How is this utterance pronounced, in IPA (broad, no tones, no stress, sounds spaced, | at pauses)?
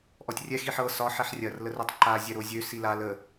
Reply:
ʔ ɔ tʲ rʲ ɛ x i ħ ɤ s ɒ ħ ɛ ħ rʲ ɐ r l ə r ø tˤ ǃ a zʲ ɛ ɾ o zʲ ø s i l a l ə